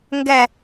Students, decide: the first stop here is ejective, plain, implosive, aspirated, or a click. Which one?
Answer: plain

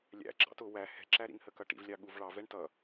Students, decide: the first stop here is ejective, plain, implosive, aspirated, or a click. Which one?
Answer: click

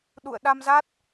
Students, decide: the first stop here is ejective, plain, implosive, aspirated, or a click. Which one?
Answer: implosive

